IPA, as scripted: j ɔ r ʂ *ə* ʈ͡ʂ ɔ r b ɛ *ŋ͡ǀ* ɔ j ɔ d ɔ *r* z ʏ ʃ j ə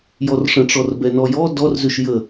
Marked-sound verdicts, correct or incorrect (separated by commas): incorrect, incorrect, correct